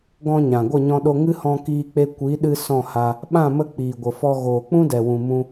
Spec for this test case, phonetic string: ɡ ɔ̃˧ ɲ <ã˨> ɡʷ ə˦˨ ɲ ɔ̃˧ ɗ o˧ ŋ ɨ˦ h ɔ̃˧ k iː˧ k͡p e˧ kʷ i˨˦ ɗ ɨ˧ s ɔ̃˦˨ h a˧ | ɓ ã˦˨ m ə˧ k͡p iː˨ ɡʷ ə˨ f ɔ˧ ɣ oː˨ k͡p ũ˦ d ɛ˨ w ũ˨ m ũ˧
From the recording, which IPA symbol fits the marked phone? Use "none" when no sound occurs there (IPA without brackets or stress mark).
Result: ã˨